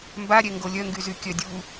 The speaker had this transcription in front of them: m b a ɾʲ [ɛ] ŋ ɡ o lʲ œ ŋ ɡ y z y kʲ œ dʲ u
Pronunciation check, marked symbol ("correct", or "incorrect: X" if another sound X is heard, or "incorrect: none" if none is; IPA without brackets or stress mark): correct